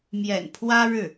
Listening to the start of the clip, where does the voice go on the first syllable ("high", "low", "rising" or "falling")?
low